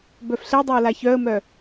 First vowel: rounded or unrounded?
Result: rounded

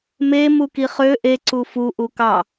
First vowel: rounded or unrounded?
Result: unrounded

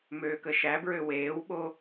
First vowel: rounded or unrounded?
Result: rounded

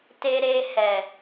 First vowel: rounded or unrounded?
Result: unrounded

